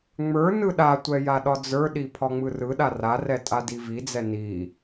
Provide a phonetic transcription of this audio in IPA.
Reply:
ŋ͡m ə˞ n ɯ ɗ a tʷ ɛ j a ɗ ɒ d͡z ə˞ ɗ i pʰ ɒ ŋ͡m ɯ r ɯ ɗ a r a r ɛ tʼ a d i v i d͡z ɛ n i

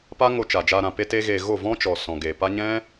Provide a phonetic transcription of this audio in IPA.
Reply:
p a˦ ŋ o˧ t͡ʃ a˨ d͡ʒ aː˧ ɾ ã˧ p e˦ t e˦ ɣ eː˧ ɣ o˦˨ v ɔ̃˦ t͡ʃ ɔ˨ s ɔ̃˨ ɡ e˨ p a˦ ɲ ɛ̃˦

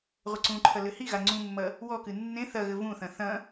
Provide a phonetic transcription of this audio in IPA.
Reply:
ʁʷ ɘ ǀ ũ ǃʰ ɐ l ɘ h i ɣ a ŋ͡ǀ ũ mː ɐ | w ɔ k ɨ nː ẽ θ ɐ ɣ ɘ v ũ θ ɐ̃ θ ɐ̃

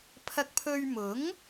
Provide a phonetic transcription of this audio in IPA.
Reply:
pʰ ɐ˧ k̚ pʰ ɵ˧ ɥ m ʊ˨˥ ŋ

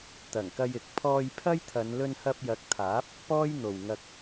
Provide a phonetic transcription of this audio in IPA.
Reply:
t̪ ɐ˨˩ ŋ k ɐ˧ j ɪ˨ k̚ pʰ ɔː˧ j pʰ ɐ˥ j t̪ʰ ɐ˨˧ n l ɵ˧ n h ɐ˧ p̚ j ɐ˨˥ k̚ t̪ʰ aː˨˥ p̚ | p ɔː˥ j n̪ o˨ w ŋ ɐ˧ k̚

